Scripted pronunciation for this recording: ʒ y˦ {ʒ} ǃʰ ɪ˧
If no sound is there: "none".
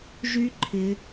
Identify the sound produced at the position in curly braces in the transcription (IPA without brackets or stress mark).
none